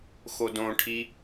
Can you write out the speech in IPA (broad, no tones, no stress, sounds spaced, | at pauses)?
x o d õ ʈʰ i